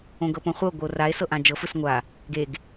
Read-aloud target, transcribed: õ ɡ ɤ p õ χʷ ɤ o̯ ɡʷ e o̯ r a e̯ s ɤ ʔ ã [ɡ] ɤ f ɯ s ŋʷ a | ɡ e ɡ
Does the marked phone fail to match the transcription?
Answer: yes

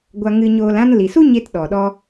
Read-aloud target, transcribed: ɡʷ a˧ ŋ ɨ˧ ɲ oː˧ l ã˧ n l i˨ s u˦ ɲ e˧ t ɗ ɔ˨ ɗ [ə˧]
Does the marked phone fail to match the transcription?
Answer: yes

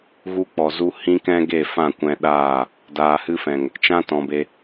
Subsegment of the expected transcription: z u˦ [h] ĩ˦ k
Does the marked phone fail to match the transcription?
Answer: no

